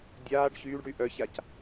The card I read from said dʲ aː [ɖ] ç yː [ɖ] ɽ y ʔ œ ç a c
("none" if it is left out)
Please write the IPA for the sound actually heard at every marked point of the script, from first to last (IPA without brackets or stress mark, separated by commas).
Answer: ɖ, ɖ